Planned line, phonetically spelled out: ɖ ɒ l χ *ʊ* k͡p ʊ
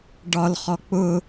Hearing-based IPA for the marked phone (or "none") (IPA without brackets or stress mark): ɔ